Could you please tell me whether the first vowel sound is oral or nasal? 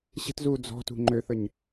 oral